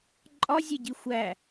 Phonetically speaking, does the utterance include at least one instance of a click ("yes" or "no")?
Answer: yes